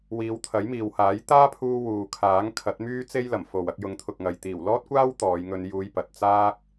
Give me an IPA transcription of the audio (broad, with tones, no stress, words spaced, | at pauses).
wiː˨˧wt̪ʰɐ˨˥jmiː˨whaː˨˥j t̪aː˥pʰuː˧ wuː˨kʰaː˨˥ŋ kʰɐ˨˥t̚myː˥t͡se˥jlɐ˨˩m fo˨w ɐ˧k̚jʊ˨˥ŋt̪ʰʊ˨k̚ŋɐ˨j t̪iː˨˩wlɔː˥t̚kʷaː˥w t̪ɔː˨˧jŋɵ˧njuː˧jpɐ˨t̚ t͡saː˥k̚